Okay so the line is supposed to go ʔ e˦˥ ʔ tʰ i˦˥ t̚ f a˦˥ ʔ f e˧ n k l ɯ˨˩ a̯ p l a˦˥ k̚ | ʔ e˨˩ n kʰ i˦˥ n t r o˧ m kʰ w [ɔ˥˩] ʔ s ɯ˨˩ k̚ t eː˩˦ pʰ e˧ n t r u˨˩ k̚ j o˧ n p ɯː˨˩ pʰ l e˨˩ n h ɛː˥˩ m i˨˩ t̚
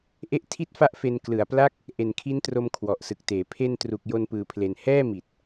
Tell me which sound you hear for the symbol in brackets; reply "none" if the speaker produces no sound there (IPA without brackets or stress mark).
ɔ˨˩